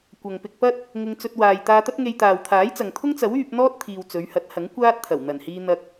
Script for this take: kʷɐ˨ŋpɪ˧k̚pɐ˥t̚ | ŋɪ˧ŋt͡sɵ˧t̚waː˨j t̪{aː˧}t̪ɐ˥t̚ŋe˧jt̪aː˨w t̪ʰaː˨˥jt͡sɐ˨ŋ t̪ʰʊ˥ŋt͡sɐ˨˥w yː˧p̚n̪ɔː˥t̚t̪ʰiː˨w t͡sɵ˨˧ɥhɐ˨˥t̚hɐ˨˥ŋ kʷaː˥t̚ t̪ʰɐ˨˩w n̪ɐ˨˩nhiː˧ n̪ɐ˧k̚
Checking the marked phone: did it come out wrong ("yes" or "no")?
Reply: no